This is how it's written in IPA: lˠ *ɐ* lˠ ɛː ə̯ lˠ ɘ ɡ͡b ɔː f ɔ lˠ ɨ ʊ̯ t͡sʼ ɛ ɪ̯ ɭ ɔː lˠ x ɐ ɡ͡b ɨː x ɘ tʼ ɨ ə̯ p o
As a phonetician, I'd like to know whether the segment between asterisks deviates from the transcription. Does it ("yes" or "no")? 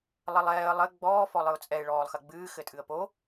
no